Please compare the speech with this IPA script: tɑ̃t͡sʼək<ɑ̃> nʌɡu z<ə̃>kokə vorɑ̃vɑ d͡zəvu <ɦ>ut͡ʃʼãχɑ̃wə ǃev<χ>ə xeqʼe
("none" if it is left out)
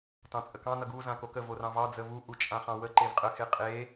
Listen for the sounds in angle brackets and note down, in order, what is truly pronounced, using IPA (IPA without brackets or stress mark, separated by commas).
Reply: ɑ̃, ã, ʔ, qʼ